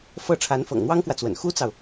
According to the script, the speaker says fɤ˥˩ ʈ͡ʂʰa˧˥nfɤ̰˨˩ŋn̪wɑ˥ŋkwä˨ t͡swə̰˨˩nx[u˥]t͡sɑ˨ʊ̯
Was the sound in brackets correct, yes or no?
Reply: yes